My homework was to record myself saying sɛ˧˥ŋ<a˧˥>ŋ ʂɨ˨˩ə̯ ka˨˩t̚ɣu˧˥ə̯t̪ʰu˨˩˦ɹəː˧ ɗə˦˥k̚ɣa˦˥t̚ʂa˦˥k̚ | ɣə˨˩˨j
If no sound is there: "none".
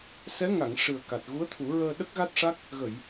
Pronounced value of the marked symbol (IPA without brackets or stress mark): a˨˩˨